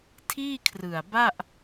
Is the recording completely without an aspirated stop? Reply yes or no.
no